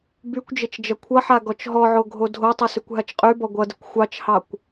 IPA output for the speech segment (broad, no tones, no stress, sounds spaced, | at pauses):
b y kʷ d͡ʒ ɪ t͡ʃ d͡ʒ ʌ kʷʰ ʌ ħ a ɡ ɔ t͡ʃ ɦ ɔ ʕ o ɡʱ o dʱ o tˤ ʌ s y kʷ ɦ a t͡ʃ qʼ y b ɔ ɡʷ ʌ d ɪ kʷ xʷ ɑ t͡ʃ h ɑ kʷ